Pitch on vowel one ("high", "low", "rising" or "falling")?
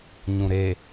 low